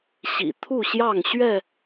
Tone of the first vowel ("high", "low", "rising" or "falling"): low